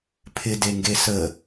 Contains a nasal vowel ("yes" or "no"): no